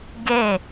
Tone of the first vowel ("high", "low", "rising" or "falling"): falling